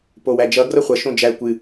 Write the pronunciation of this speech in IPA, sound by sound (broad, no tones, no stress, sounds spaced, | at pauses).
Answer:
p o w æ d͡ʒ ʌ ɡ r ʌ χʷ ʌ ʃ õ d͡ʒ æ kʷ ɨ